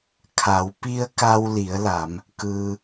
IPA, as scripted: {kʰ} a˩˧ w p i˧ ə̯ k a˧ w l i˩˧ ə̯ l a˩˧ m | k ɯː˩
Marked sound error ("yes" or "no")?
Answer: no